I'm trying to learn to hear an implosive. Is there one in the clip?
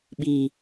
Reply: yes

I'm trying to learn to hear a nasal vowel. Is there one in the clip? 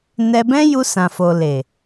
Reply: yes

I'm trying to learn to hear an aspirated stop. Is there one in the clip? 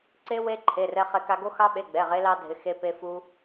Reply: yes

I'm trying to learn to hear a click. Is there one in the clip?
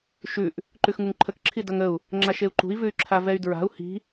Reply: yes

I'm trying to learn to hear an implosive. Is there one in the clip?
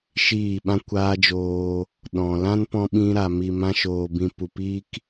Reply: yes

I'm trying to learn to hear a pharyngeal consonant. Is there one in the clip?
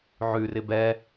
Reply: yes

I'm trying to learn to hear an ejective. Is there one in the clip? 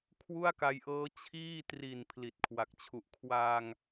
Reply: no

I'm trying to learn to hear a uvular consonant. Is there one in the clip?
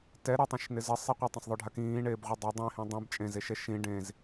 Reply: yes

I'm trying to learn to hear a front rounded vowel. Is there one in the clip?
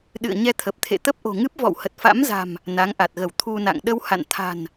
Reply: no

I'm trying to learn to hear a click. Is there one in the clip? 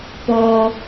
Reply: no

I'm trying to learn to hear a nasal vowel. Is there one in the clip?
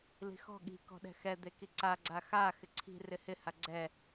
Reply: no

